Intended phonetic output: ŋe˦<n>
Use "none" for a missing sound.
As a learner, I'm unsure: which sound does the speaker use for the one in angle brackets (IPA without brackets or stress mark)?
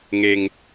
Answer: ŋ